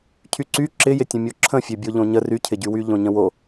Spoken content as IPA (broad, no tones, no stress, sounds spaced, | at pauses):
cʰ y ǀ y ǁ ɪ j ɪ tʲ ə̃ mʲ o ǁʰ ə̃ fʲ ø bʲ o ʎ õ ɲ ə r y cʰ ɪ ɟ y w y ʎ õ ɲ ə̃ w o